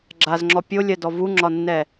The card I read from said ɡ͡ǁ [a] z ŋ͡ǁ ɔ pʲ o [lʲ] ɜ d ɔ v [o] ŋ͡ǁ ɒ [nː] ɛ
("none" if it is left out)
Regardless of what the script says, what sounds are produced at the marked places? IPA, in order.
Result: a, lʲ, u, nː

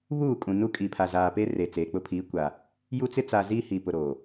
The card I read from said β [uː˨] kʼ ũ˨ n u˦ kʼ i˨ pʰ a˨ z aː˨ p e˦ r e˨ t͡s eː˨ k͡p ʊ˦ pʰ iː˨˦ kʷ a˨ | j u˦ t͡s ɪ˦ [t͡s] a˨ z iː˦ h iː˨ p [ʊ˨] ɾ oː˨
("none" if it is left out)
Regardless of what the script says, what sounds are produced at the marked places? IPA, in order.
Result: uː˦˨, t͡s, ʊ˨

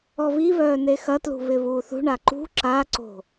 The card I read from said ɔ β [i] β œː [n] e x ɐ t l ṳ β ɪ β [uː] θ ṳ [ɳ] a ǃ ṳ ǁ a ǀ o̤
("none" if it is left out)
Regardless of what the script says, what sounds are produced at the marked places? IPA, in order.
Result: i, n, uː, ɳ

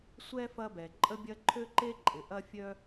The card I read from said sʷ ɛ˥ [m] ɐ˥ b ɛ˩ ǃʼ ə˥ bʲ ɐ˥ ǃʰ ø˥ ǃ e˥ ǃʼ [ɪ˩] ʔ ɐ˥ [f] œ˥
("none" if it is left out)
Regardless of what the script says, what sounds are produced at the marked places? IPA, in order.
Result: f, ɪ˩, fʲ

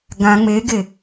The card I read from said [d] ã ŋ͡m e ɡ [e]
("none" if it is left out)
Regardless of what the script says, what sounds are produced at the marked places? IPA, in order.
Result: ɡ, e

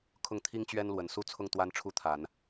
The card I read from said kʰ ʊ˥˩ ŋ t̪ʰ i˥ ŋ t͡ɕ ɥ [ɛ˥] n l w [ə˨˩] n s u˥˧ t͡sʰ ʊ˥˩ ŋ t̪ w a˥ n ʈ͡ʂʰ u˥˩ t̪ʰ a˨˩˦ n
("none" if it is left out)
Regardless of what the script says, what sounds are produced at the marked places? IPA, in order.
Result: ɛ˥, ə˨˩

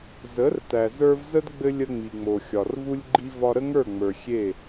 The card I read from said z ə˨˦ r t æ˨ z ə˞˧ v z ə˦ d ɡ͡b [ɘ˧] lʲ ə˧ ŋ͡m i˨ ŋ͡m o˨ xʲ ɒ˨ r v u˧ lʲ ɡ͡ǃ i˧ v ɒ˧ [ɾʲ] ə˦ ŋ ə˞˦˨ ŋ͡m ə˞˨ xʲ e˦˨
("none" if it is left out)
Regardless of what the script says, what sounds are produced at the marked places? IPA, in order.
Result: ɘ˧, ɾ

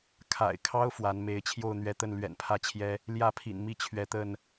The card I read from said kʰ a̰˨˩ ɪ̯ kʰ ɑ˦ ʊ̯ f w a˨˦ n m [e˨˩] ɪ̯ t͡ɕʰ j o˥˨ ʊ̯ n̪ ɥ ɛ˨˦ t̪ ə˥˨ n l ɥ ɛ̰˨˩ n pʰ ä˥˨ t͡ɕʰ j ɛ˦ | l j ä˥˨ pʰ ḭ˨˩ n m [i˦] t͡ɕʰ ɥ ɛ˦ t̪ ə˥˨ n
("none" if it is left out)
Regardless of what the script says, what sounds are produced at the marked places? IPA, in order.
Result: e˨˦, i˥˨

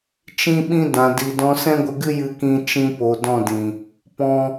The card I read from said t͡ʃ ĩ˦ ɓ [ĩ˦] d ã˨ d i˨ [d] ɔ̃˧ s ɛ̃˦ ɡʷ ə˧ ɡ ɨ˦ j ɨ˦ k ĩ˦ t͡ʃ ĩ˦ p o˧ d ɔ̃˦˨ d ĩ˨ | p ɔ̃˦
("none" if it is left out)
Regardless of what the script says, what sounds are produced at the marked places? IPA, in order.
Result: ĩ˦, d

